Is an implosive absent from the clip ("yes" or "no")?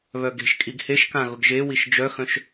yes